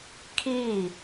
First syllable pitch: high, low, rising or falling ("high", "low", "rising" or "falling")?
falling